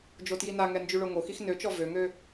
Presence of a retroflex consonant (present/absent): present